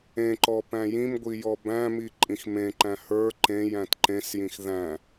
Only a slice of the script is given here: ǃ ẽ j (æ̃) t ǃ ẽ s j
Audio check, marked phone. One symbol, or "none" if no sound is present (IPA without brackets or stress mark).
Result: æ̃